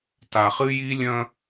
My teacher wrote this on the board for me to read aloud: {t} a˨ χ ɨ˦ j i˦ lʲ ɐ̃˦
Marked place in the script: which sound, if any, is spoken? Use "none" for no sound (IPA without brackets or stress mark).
t